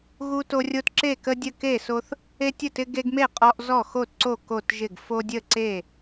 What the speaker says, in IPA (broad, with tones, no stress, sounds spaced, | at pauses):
ɣ u˦ t o˦ rʲ o˦ t ǁ e˥˩ k ə˦ dʲ ə˥˩ k e˥˩ s o˦ θ | e˦ tʲ ə˥˩ t ɪ˦ ɡ e˦ ɡ m e˥˩ qʼ ɔ˦ ʔ z ɔ˥˩ x o˥˩ t ǀ o˥˩ k o˥˩ t ʒ ɪ˥˩ ɡ f o˦ dʲ ə˥˩ ǀ e˥˩